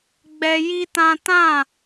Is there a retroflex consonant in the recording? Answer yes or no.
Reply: no